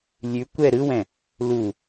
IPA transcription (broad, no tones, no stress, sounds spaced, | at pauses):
lʲ ʉ kʷ ɛ ɾ ɯ w ɛ̃ | l u